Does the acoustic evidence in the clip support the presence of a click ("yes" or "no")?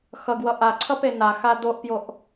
yes